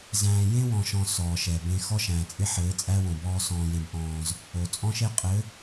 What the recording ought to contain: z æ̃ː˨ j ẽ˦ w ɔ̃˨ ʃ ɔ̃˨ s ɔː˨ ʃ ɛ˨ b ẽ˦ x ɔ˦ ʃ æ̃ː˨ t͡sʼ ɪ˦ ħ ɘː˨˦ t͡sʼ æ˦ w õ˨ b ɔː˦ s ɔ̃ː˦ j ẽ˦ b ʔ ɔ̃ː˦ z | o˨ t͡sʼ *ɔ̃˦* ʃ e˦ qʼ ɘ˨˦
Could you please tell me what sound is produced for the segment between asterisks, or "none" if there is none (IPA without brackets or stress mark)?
ɔ̃˦